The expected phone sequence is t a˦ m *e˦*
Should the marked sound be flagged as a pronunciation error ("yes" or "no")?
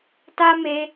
no